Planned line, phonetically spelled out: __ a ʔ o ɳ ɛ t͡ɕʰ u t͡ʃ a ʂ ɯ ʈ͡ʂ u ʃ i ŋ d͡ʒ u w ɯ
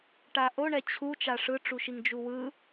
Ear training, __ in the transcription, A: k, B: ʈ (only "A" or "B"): B